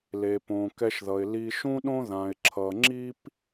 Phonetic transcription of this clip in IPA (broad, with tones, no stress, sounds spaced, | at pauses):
l e˩ p õ˩ k ɛ˧ ʃ ð ʌ˩ ɪ̯ l i˧ ʃ ũ˥ ɗ õ˥ ð ã˩ ɪ̯ ǁʰ ʌ˩ ŋ͡ǁ i˥ p